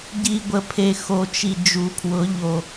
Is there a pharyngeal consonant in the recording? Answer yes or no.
no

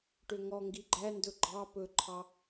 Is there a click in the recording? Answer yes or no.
yes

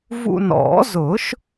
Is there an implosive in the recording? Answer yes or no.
no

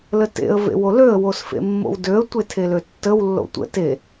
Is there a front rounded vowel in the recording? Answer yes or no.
yes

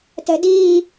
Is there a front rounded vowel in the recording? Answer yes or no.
no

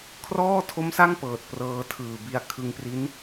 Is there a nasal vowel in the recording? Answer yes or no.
no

